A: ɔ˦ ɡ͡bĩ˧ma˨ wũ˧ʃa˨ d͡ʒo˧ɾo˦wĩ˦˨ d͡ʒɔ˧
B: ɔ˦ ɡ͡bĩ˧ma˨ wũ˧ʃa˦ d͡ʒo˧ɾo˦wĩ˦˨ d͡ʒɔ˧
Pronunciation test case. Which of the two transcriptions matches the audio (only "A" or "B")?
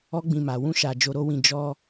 A